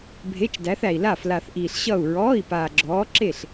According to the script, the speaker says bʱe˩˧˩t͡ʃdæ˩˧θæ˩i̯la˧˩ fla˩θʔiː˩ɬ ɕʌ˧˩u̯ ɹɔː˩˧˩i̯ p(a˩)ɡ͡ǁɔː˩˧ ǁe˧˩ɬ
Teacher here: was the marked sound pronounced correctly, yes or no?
no